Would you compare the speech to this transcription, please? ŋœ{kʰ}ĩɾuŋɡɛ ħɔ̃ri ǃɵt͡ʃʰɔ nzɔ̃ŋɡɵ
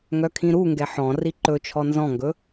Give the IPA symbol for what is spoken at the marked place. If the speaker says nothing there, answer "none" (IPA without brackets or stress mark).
kʰ